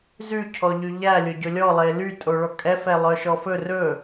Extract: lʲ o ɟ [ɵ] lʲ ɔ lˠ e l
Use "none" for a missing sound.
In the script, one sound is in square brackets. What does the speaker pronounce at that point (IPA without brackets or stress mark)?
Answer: ɵ